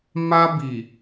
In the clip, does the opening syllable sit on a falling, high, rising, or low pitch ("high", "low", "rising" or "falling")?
high